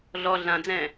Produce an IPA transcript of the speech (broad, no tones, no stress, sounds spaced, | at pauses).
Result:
ɮ ɔ ɮ ã d͡z ɛ̃